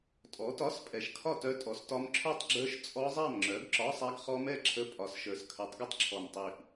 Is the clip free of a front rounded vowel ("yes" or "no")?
no